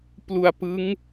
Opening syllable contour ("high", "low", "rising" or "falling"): low